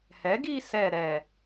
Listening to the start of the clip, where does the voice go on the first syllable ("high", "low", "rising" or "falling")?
rising